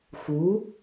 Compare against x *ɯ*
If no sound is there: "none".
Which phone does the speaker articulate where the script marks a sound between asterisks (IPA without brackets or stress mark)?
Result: u